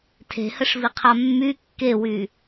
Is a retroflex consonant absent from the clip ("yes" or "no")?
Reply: no